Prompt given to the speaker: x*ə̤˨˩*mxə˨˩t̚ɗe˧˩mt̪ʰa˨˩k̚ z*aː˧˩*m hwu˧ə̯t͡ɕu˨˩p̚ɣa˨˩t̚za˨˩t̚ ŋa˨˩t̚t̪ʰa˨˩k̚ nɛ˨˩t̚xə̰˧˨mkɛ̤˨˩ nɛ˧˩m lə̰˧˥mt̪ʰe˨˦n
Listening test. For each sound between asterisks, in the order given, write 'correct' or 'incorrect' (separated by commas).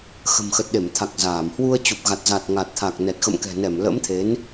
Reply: correct, correct